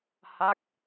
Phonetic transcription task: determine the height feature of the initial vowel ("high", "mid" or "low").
low